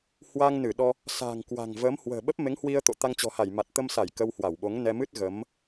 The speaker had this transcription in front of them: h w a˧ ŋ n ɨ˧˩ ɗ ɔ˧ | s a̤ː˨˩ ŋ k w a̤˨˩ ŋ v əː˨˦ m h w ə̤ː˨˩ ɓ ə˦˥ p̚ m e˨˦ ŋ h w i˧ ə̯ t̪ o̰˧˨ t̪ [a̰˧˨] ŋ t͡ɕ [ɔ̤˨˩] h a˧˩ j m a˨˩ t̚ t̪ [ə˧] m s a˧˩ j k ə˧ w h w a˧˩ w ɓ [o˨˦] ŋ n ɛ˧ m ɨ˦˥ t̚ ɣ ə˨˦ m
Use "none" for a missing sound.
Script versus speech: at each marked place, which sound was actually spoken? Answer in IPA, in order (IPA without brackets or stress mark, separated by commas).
a˧, ɔ̤˨˩, ə˧, o˨˦